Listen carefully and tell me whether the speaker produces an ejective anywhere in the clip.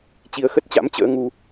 no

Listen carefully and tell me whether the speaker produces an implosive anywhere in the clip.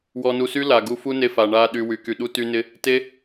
yes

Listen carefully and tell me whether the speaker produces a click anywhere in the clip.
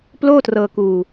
no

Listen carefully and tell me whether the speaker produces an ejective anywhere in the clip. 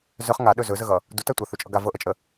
yes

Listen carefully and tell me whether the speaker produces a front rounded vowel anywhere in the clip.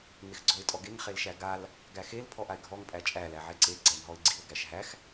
no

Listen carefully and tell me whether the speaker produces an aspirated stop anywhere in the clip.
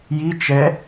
no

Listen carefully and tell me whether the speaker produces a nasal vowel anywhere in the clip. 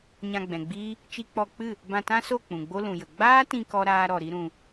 yes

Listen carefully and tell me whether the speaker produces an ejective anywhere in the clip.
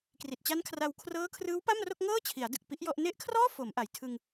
no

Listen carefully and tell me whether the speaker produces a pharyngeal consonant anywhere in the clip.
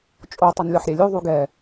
yes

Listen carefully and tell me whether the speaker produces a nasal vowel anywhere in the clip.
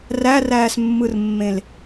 yes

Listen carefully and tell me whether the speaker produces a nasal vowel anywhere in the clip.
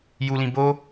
yes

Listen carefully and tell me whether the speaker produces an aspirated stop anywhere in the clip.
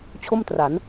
yes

